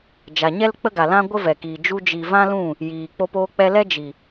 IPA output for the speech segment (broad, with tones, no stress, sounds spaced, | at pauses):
d͡ʒ a˨ ɲ ɛ˦ l k͡p ə˦ ɡ a˨ l ã˦ ɡʷ ə˦ v ɛ˨ k iː˨ d͡ʒ u˧ d͡ʒ i˨ v ã˦ l ũ˦˨ | j iː˨ k͡p o˧ p oː˧ k͡p ɛ˧ l ɛ˦ d͡ʒ i˨